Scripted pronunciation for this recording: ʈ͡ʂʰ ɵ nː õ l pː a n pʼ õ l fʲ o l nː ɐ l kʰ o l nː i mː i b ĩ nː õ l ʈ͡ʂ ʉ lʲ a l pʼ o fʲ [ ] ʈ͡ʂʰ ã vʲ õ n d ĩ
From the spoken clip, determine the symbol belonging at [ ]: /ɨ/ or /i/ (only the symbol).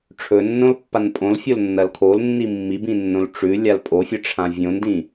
ɨ